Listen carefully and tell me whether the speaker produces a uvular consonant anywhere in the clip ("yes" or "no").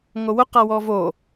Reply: yes